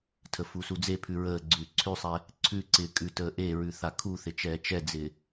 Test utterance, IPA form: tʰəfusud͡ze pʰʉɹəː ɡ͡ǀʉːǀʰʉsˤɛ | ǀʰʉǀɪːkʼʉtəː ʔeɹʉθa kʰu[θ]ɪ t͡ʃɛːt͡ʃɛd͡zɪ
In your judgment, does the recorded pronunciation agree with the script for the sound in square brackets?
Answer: yes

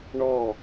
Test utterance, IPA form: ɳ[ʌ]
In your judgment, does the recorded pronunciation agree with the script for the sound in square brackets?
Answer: no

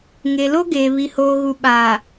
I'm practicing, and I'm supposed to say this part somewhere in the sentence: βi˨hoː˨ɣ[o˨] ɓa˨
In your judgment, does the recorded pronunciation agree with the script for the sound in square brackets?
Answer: no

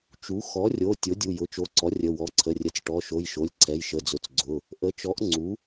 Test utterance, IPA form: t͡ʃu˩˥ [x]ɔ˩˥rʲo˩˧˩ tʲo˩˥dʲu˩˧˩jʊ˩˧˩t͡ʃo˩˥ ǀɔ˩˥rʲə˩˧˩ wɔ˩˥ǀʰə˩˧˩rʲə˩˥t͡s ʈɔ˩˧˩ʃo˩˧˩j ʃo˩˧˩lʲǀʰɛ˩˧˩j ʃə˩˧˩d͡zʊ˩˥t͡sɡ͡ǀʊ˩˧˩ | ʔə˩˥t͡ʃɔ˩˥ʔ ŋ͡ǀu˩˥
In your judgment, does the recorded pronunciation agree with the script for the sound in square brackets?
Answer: yes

